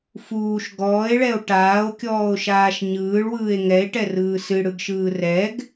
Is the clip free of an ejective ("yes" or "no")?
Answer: yes